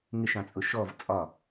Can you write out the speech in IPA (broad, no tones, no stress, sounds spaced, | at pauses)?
ŋ ɪ ʃ ɑ̃ t͡sʼ ʊ ʃ ɔ v t͡sʼ ɒ